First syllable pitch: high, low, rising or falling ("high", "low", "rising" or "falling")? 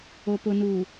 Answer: low